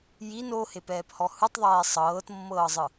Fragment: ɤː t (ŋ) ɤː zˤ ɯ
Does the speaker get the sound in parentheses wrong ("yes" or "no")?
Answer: yes